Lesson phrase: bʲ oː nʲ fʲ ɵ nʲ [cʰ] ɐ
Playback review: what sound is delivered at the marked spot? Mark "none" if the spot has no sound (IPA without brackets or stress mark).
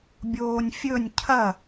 cʰ